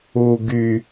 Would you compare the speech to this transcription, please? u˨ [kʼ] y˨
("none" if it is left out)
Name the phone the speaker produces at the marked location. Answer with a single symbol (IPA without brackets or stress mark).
ɡ